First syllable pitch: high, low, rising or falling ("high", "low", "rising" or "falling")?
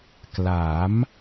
rising